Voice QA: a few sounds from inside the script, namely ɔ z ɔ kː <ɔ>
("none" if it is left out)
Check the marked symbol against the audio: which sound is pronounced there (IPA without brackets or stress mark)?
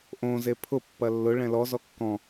ɔ̃